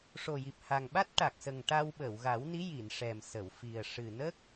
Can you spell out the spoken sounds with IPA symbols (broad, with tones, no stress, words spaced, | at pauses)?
ʂo˨˩ji˨˩p̚ha˨˩ŋ ɓa˦˥t̚ʈa˨˩k̚sə˨˩ŋ ʈa˧wɓə˨˩˨wɣa˨˩˦wni˧˥ ji˨˩˨n ʂɛ˨˩msə˨˩˨wfi˨˩ə̯ ʂɨ˨˩nə˦˥k̚